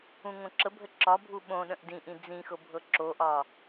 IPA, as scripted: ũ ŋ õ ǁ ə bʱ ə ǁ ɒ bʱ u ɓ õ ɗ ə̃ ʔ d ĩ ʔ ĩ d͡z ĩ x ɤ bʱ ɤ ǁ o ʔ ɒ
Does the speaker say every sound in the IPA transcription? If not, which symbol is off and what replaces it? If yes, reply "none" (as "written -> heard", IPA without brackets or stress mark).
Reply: none